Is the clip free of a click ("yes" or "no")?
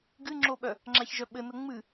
no